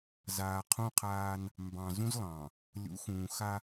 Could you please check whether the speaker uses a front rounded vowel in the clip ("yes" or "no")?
no